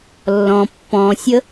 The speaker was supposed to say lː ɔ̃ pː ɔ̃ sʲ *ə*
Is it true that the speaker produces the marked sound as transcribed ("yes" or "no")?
yes